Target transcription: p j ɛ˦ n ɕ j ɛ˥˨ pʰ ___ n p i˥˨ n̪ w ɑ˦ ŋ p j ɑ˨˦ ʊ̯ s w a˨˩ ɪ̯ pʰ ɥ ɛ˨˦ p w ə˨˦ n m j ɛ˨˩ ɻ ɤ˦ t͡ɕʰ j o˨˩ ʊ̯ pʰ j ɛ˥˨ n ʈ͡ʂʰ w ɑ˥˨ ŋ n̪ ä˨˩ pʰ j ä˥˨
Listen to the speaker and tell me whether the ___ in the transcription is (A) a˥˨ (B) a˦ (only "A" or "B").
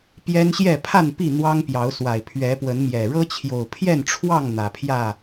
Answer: A